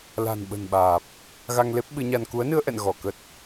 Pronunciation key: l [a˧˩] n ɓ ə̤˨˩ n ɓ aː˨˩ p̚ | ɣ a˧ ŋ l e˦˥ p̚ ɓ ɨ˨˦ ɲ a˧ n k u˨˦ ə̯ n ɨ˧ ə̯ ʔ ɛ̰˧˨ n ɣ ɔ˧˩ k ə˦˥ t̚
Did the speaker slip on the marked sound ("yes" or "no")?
yes